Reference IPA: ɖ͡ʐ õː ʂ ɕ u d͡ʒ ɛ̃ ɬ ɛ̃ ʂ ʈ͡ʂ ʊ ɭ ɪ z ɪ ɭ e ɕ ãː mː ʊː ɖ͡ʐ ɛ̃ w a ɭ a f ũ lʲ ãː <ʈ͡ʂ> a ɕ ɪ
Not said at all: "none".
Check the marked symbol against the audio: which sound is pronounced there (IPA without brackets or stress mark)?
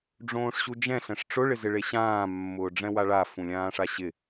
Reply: ʂ